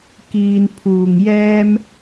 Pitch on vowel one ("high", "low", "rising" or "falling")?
low